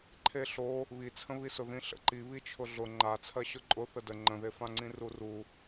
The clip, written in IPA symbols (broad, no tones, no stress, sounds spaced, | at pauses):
ǃʰ e ɬ o | β i t͡sʰ ə̃ β i s ʊ ð ĩ ɬ ə̰ ǃ i β i t͡ʃʰ ʊ ɮ ʊ ŋ͡ǃ a t͡sʰ ɜ ɕ ʊ ǃʼ ʊ θ ə d ə ŋ͡ǃ ə̃ ð e f ã ŋ͡ǀ ĩ r u r u